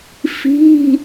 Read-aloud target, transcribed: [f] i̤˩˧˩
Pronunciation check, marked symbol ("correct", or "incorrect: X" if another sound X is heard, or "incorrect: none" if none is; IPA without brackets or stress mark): correct